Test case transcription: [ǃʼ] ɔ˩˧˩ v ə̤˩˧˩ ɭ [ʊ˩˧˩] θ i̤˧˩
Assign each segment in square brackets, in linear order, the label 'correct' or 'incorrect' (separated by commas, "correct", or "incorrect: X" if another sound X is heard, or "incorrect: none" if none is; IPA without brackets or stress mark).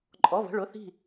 correct, correct